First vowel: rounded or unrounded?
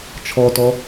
rounded